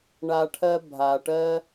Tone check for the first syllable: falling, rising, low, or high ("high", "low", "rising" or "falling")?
low